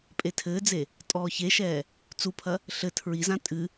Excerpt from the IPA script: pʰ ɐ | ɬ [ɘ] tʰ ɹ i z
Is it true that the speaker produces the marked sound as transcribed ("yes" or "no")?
yes